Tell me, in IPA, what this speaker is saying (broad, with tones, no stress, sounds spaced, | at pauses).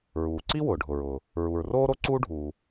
ɹ uː˩ ǀ i˥ w ʊː˩ ɖʱ ʊ˩ ɹ ʊː˩ | ɹ u˩ ɹ r oː˥ ɾ o˥ ǀ uː˥ ɖʱ uː˩